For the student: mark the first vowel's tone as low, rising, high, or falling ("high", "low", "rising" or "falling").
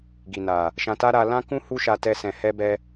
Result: low